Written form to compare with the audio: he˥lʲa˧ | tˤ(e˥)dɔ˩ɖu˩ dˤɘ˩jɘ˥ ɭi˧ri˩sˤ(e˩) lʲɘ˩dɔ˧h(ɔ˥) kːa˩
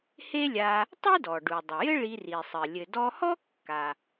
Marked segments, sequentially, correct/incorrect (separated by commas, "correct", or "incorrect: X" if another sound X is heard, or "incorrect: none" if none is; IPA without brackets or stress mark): correct, incorrect: ɘ˩, correct